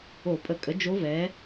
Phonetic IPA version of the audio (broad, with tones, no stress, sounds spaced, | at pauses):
o˧˩˧ pʼ ə˧˩˧ kʼ ə˩˥ d͡ʒ o˧˥ v ɛ˩˥